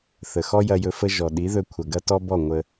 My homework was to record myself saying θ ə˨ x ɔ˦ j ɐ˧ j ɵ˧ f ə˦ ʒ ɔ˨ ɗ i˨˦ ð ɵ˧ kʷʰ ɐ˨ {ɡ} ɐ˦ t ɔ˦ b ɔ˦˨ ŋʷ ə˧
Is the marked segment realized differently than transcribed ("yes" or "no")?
no